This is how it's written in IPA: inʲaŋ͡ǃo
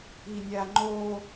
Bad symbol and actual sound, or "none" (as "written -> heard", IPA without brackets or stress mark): none